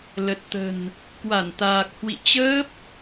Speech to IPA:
l ə˨˩ t̚ t̪ ə̤˨˩ n | k w a˧˩ n t̪ aː˨˩ k̚ h w ḭ˧˨ t͡ɕ əː˦˥ p̚

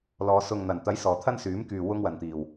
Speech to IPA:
l ɔː˨˧ s ʊ˨ ŋ n̪ ɐ˨˩ n t̪ ɐ˨˥ j s ɔː˨˩ t̪ʰ ɐ˥ n s yː˨˥ m k yː˨ w ʊ˥ ŋ w ɐ˨ n t̪ iː˨˩ w

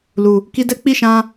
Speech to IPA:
l u˨ | k i˧ d ɛ˦ k͡p i˦˨ ʃ ã˧

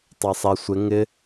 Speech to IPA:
tˤ a sˤ ɛ sʷ ɪ ŋ ɪ

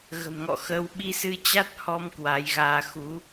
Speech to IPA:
ɣ ə̤˨˩ m ŋ ɔ̰˧˨ x ə˧ w ɓ i˧ s ɨ˧ t͡ɕ a˦˥ t̚ h ɔ˧ m k w a˨˦ j ɣ aː˧ x u˨˦

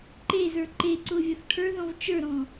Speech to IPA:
ǃ e z ə˞ ǃ e ǀ ʊ vʲ ʌ θ ʈʰ ə˞ ð ɔ̃ v t͡ʃ ə˞ ɾ ɔ̃

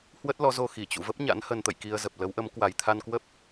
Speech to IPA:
h w ə˦˥ t̚ l ɔ˨˦ z o˧ x i˧˩ t͡ɕ ṵ˧˨ v ə˦˥ p̚ ɲ a̰˧˥ n h ə˧ n t̪ ə̰˧˨ j k i˧ ə̯ z ə˨˩ p̚ l ə˨˦ w ʔ ə˨˦ m k w a˨˩ j t̪ʰ a˧ n k w ə˦˥ p̚

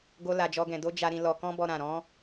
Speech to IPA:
ɡ o˧ l a˧ d͡ʒ ɔ˦ ɡ ɛ̃˧ d o˦ d͡ʒ a˧ ɾ ĩ˧ l ɔ˧ k ɔ̃˦ b ɔ˧ ɾ ã˨ ɾ ɔ̃˨˦

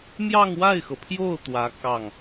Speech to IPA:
m j ɑ˥˧ ŋ w a˥˩ ɪ̯ x ɤ˩ pʰ j o˥˩ ʊ̯ t̪ w ä˧˥ k ɑ˥˩ ŋ

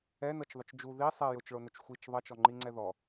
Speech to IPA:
ɛ n ɤ t͡ʃ ðˤ ʊ t͡ʃ d͡ʒ u ð i sˤ ɛ j ʊ t͡ʃ ɭ o n ʊ t͡ʃ xʷ i t͡ʃ ðˤ ʌ t͡ʃ ɔ ŋ͡ǃ i ŋ͡ǀ ɛ ð ɔ

